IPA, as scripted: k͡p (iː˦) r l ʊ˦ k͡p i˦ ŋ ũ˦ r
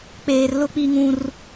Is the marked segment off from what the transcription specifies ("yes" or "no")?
yes